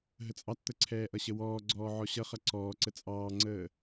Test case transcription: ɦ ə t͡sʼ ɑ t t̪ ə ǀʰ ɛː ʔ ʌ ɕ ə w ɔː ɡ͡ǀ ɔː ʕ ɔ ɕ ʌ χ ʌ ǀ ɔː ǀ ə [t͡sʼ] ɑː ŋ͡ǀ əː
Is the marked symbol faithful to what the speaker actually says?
yes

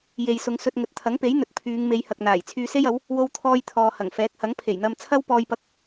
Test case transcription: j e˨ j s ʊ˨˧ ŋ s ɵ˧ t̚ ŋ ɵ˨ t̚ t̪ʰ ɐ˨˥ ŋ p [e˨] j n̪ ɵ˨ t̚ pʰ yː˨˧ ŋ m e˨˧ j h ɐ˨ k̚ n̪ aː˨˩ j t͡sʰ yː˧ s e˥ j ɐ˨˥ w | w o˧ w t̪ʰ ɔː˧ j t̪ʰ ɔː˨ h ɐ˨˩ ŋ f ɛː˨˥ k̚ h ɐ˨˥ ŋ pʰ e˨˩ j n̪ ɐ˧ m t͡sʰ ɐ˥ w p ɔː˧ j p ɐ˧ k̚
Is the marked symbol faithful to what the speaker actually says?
no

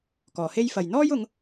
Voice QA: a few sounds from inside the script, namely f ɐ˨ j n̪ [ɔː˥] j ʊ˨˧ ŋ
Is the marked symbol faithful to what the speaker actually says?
yes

